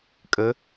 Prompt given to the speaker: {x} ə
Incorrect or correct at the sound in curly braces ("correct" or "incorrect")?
incorrect